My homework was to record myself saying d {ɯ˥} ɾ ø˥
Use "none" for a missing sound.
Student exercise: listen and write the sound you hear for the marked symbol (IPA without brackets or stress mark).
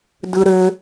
ɯ˥